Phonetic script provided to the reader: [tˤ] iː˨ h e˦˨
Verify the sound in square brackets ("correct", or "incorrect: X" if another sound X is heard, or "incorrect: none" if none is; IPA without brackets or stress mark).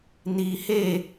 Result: incorrect: n